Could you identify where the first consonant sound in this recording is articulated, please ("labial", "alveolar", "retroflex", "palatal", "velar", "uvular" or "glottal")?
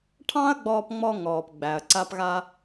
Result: retroflex